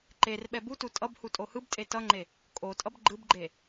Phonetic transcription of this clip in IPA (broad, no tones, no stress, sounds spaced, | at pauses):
ǃ e r ɓ ɛ b u t u tʼ ʌ b h u tʼ o h ɯ b tʼ e t ʌ ŋ͡ǃ e | kʼ o tʼ ʌ b ɡ͡ǃ ɯ b ɡ͡ǃ e